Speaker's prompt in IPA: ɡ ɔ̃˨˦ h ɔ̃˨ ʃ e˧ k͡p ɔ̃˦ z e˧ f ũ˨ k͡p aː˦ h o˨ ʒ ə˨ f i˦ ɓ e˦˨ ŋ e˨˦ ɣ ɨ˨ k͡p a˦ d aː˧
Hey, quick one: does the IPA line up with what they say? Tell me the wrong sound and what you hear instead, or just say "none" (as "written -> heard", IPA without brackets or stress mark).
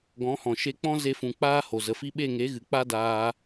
ʒ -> z